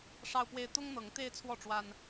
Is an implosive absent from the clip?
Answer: yes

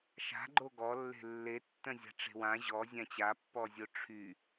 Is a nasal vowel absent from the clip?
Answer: no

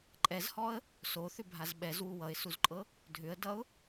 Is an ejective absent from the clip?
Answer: no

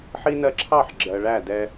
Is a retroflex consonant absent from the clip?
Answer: no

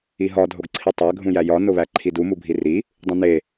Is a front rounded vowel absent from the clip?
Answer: yes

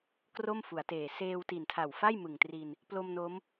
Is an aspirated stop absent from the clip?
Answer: no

